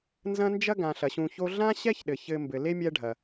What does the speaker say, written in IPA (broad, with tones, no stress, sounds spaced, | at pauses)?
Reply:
n z ɐ̃˦ n d͡ʒ ɐ˥ ɡ ã˩ ɬ ɐ˩ ɕ ũ˨ ç o˦ ɮ ã˥ ɕ ɛ˥ ç ɗ ɘ˩ ç ɘ˨ m b ɘ˩ l e˥ mʲ ɛ˦ ɖʱ ɐ˩